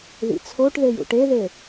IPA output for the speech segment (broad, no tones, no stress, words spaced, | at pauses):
ðḭt͡sʰoʈðejṵ ʈeðe